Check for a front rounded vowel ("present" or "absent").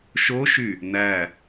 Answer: present